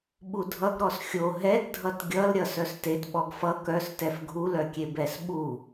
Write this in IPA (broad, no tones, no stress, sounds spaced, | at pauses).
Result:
ɓ u dʱ ʌ ɡ ɾ ɔ s xʲ o ɦ ɛ ɡ dʱ ʌ t ɡʲ ʌ l ɾʲ ʌ s œ s t e t ɓ ɔ ɡ f ʌ k œ s t ɛ f ɡʱ u l œ kʲ e b ɛ s ɓ u